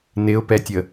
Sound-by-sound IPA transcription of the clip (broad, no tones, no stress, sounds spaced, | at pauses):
n ɪ ʊ̯ p ɛ tʲ ə